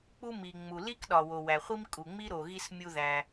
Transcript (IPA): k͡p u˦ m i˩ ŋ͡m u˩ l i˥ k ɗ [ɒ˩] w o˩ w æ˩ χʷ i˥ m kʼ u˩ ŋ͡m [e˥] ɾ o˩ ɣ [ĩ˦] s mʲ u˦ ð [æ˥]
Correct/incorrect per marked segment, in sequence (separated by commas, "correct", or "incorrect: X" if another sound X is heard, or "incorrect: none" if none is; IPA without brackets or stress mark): correct, incorrect: i˥, incorrect: i˦, incorrect: æ˨